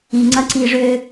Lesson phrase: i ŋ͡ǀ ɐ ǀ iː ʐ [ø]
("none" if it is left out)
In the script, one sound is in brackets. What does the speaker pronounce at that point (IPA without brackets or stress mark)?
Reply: ø